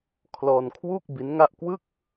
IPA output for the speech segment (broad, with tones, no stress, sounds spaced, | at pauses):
kʰ l ɔː˧ n kʰ w u˥˩ k̚ b i˦˥ n ŋ a˥˩ ʔ k w ɯ˥˩ k̚